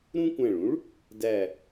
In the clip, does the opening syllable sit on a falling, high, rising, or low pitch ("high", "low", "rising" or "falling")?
high